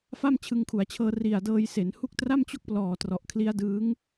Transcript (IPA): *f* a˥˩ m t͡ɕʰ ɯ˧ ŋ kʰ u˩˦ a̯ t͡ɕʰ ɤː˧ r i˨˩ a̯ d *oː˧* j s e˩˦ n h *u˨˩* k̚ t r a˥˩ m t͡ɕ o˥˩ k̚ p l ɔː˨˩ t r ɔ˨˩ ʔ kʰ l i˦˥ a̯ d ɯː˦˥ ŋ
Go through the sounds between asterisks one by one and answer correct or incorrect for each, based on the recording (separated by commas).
correct, incorrect, incorrect